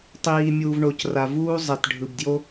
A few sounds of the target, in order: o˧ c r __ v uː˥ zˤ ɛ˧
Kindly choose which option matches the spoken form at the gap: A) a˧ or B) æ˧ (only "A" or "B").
A